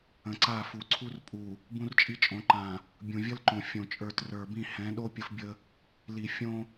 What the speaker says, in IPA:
ə̃˨ ǀ a˦˨ f u˨ ǀʰ u˦ r pʼ u˨ | b ũ˦ r t͡ʃʼ i˦ t͡ʃʼ õ˨˦ ǃ ã˨ | bʲ ũ˨ vʲ ə˦ l ǃ õ˨ fʲ õ˨ t͡ʃʼ ə˞˨ t r ə˞˨ b ĩ˦˨ h ɛ̃˨˦ ɗ o˦ pʲ ə˦ f bʲ ə˦ | l i˨ fʲ õ˦

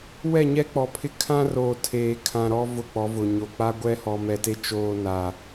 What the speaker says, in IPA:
w ɛ˦˨ ɲ ɛ˦ k͡p ɔ˨ pʰ ɪ˦ kʰ ã˦ r oː˨ tʰ eː˨ kʰ ã˨ ɾ ɔ˦ v ʊ˦˨ k͡p ɔ˨˦ v ʊ˨ ɲ o˨ k͡p a˦ ɡʷ ɛ˦ h ɔ˨ m ɛ˨ t e˦ t͡ʃ oː˦ n a˨

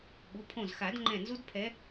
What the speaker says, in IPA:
ɓ u˩˧˩ pʰ õ˧˩ z x a˨˩˦ d ŋ͡ǃ ɛ̃˧˩ n z u˦ d pʰ ɛ˨˦

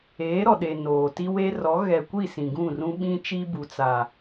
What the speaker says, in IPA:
eː˨˦ ɾ ɔ˨ ɗ e˨ n oː˨ t i˦ w e˦ r ɔ˨˦ ɣ ɛ˨ kʷ i˦˨ s ĩ˨ ɡ ũ˦˨ r ũ˦ ɓ ĩ˦ t͡ʃ i˦ b u˨ t͡s a˨

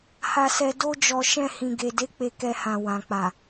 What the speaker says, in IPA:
h a˧ s ɛ˧ d o˦ d͡ʒ ɔ˧ ʃ ɛ̃˧ h ĩ˨ ɡ e˨ d e˨˦ k͡p e˧ k ɛ˧ h ã˨ w ã˨ k͡p a˨

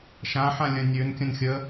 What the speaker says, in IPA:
ʃ ã ħ ã lʲ ɐ̃ nʲ ø n kʲ ə̃ n xʲ ə

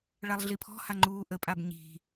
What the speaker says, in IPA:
ɭ a lˠ ɮ i pʰ ɔ̤ h a ŋ͡ǃ uː ʔ ə pʼ a b ɲ i̤

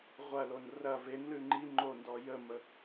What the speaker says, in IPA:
ʁʷ ɐ l o n r ɐ v e n l ʉ ŋ͡ǃ i ŋ͡ǃ o n d ɔ j ə m ə

